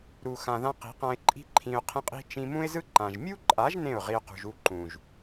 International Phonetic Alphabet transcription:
ɾu˨xã˨ðã˧ qi̤˨˦qã˧ɪ̯ǃʼi̤˦ ǃʰĩ˧ʊ̯ qʰẽ˦qʼi̤˦ t͡ʃĩ˧mũ˦ɪ̯zɯ˦ ǃã˨ʒ mʲu˦ǃʼa˨˦ʒ nẽ˦˨ʊ̯ ʁi˧ʊ̯qṳ˨ʒ u˦˨ ǃũ˨ʒ

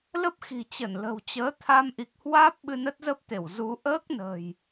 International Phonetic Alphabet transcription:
lə˦˥p̚xi̤˨˩ t͡ɕə˧˩nlə̤˨˩wt͡ɕəː˨˦ t̪ʰa˧mʔi˨˩k̚hwaː˦˥p̚ ɓɨ˧nə˦˥t̚zə˦˥p̚t̪e˧˩w zu˨˦ ʔəː˦˥k̚nə̤˨˩j

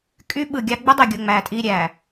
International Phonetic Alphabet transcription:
kʼy˦ɓɯ˨ɡʲɑ˦ ɡ͡bɯ˦dˤi˨ɡʲo˨ ŋ͡mæ˨tʼi˦˨ɾʲæ˨

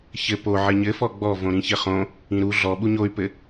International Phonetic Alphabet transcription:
çɘ po ʕɘɲɘfɔ ɡ͡bɔ võɾĩçɘχõ | ĩɾu ɮɔɓu ɲoy̯pɘ

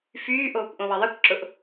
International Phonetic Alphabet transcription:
fyːʔoːkʷʔõ wɐðˤɐkʷ ǁʊʔ

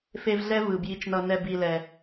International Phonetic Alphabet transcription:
fe˦vɮɛ˥vɯ˨ bji˨t͡ʃnʌ˨nɛ˨ bi˨lɛ˩

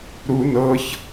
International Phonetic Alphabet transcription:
ɾu nɤç

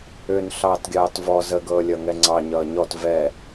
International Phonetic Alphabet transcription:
ʏn ɬɑːtɡʲɑːtvɔ zəɡɤː lʲʌŋɛŋ͡ǀɑ ɲʌːɲɔt vɛ

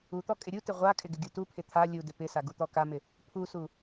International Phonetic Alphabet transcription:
ut̪ɔ kʼɪɾʲutɪ ʁʷakʼɪ ɡɪɡʲutupʰɪ t̪ʰa lʲudɪ pɪsa ɡut̪ɔkamɪ | pʰusu

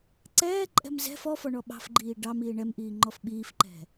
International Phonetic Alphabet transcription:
ǀɛːǃʼɛ̤m zɛ̤f ɔfɔɳɔ ɓɑ̤fɡ͡ǃiː ɖɑmiː ɳɛmʔiːŋ͡ǃɔf ɓiːfǃɛ̤

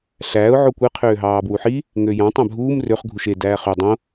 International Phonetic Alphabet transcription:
ɬæːʊ̯ ʕokʷe qʰøːɦɑːbwuħi | ŋøjɑ̃tˤ æ̃bʱuːm røχ ɡʱuʃe dæːχø dˤõ

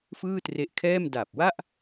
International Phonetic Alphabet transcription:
fɯː˥˩tre˦˥ʔkʰɛː˥˩m da˨˩p̚wa˥˩ʔ

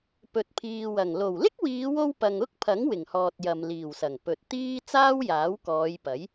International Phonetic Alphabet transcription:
pɵ˨t̚pʰiː˨wɐ˨˩ŋ lo˨˩wlɪ˥k̚wiː˨˧wo˧w pɐ˨ŋʊ˥k̚pʰɐ˨˥ŋ wɪ˨˩ŋhɔː˨t̚ jɐ˨mliː˨˩wsɐ˨˩ŋ pɵ˨t̚t̪iː˥ t͡saː˥wjaː˨˥wkɔː˨˧jpɐ˨˥j

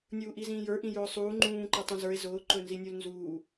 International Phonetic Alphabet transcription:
nʲuːʔizĩːjə˞ ʔĩjʊːsˤuː ŋ͡ǃũː ǃetˤũzə˞e̯ zʊː ǃɵnzinʲulnzuː

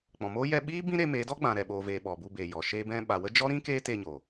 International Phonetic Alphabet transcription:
k͡pɔ̃˨moː˦ jɛ˧ɓiː˦ bĩ˦ɾe˧me˨˦dɔ˦ ɡ͡bã˨ɾɛ˨ɓoː˨veː˨ ɓɔ˨bu˧beː˨ jɔ˨ ʃeː˧bɛ̃˧ɓa˨wə˦ d͡ʒɔ˦ɾĩ˦keː˦ teː˧ɲoː˨

